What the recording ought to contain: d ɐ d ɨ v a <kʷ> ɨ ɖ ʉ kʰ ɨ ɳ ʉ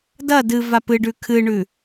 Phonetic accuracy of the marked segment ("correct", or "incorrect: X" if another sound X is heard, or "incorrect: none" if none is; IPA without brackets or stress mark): incorrect: p